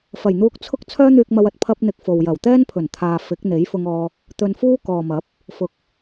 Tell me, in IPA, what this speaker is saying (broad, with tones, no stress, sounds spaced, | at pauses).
f ɐ˨˩ j n̪ uː˧ k̚ t͡sʰ ʊ˥ k̚ t͡sʰ œː˥ n̪ yː˧ k̚ m ɐ˧ w ɐ˨ t̚ pʰ ɐ˥ p̚ n̪ ɪ˧ k̚ f o˨ w j ɐ˨˩ w t̪ ɛː˥ n pʰ ɵ˨˩ n t̪ʰ aː˨ f ɪ˨˥ k̚ n̪ e˨˥ j f ʊ˧ ŋ ɔː˧ | t̪ ɵ˧ n f uː˥ k ɔː˨ m ɐ˨˥ p̚ | f ʊ˧ k̚